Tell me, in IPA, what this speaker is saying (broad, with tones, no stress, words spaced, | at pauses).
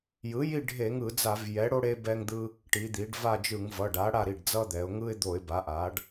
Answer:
jɯ˩˥ji˦˨ ɖʱe˧˩˧ŋɯ˧˩˧d͡za˧˩˧v jɛ˩˥ɽo˦ ɽe˦bɛ˦ŋd̪ɯ˦ | ʈi˩˧d̪i˩˧ɖva˦˨d͡ʒɯ˧˩˧ŋ vʌ˩˧˩ɖa˩˥ ɽa˦˨ɾi˩˧˩ɖ d͡zʌ˦d̪ɛ˩˧ʊ̯ ŋɯ˦ɪ̯ d̪o˧˩˧ɪ̯ba˩˥ ʔa˩˧ɖ